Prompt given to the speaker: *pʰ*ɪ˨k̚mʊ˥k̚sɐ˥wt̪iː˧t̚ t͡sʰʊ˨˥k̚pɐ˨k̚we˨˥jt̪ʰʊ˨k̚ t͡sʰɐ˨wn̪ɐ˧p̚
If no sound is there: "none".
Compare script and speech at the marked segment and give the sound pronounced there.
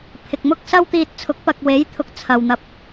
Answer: pʰ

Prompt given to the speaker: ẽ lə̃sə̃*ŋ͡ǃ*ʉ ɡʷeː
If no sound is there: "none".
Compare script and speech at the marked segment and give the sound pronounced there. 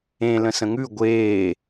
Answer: ŋ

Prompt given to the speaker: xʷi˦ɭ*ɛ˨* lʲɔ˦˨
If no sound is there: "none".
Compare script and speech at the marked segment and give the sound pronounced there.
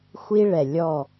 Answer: ɛ˨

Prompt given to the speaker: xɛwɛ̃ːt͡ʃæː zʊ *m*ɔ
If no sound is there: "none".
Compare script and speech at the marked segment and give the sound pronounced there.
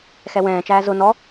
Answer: n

